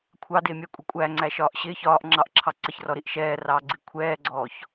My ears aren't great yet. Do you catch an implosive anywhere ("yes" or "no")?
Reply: no